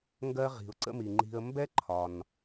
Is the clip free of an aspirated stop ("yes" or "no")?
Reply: no